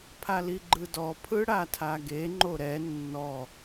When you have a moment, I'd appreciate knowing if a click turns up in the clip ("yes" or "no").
yes